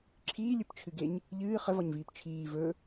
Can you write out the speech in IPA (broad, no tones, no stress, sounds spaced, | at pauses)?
ǁʰ iː lʲ ɵ p t͡ʃʰ ɨ ɡ e ɲ | ʎ ɨː χ ə v ɒ ɲ v iː p t͡ʃʰ iː v ɵ